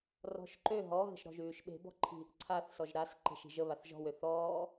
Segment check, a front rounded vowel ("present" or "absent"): present